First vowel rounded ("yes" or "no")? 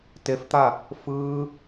no